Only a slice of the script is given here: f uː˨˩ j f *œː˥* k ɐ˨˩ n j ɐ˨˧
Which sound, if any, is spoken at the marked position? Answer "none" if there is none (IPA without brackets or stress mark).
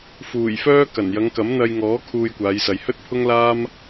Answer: œː˥